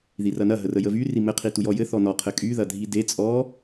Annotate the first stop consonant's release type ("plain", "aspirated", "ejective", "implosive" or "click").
aspirated